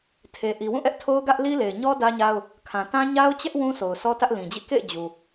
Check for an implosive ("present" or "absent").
absent